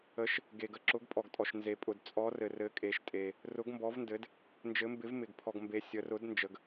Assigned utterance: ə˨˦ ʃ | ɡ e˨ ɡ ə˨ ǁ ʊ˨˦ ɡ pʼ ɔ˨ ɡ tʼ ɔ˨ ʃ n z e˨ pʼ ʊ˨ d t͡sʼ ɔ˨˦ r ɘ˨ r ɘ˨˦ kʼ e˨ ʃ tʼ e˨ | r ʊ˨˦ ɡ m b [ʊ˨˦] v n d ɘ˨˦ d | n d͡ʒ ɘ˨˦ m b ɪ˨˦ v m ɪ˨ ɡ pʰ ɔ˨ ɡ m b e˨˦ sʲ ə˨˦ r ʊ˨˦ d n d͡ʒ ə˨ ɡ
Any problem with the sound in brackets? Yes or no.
yes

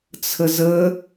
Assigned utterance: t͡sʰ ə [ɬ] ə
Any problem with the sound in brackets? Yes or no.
yes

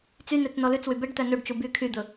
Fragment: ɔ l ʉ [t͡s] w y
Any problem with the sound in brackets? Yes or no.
no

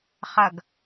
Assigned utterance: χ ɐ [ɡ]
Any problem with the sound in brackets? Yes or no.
no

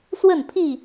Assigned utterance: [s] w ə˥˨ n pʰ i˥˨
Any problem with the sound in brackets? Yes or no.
no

